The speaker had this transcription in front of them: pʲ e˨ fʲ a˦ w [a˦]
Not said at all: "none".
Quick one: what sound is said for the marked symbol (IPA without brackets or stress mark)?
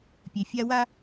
a˦